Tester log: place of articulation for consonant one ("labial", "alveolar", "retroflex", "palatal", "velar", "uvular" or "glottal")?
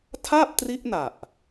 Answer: alveolar